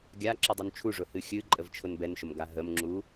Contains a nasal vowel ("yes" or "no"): no